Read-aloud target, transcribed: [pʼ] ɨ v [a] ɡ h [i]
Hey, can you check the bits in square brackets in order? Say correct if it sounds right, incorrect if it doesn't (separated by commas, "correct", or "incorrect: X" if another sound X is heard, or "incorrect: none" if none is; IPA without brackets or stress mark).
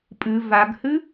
correct, correct, incorrect: ɨ